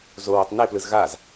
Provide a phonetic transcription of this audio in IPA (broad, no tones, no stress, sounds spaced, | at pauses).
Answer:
z o w o tˤ n e p l ɯ z ɣ a z